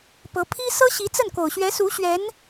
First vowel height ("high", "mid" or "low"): mid